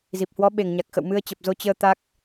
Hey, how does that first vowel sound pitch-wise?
low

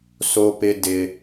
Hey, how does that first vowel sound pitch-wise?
high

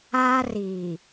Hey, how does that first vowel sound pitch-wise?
high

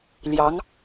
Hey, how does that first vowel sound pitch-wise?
rising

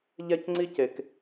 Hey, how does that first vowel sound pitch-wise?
high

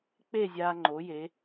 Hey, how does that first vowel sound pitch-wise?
falling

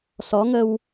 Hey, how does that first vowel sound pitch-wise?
rising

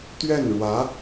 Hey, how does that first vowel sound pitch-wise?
falling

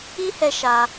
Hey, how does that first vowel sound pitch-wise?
high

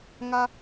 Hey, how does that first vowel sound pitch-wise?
high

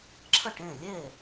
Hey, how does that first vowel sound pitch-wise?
falling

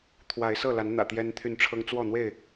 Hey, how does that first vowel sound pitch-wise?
rising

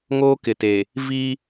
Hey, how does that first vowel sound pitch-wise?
high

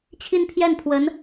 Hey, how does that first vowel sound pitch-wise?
falling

